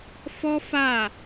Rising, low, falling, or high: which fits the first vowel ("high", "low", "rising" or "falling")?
high